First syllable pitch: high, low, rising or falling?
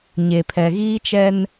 low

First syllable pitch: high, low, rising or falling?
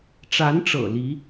rising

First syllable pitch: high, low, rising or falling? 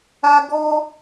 high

